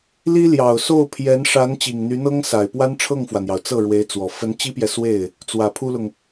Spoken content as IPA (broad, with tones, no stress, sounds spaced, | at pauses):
l i˥ l j ɑ˨˩ ʊ̯ s o˥˩ ʊ̯ pʰ j ɛ˧˥ n ʂ a˧˥ n t͡ɕ i˨˩ ŋ n̪ y˧˥ n̪ ɤ˥ ŋ s a˨˩ ɪ̯ p w a˥ n ʈ͡ʂʰ ɤ˥˩ ŋ f w ä˩ n̪ j ɑ˩ ʊ̯ t͡s ɤ˥˩ ɻ w e˧˥ ɪ̯ t͡s w ɔ˨˩ f ə˧˥ n t͡ɕ i˥ p j ɛ˨ s w e˥˩ ɪ̯ | t͡s w ä˨˩ pʰ u˥ l ʊ˨ ŋ